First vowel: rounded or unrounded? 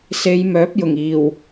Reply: unrounded